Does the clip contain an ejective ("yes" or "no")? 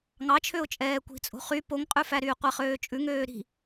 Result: yes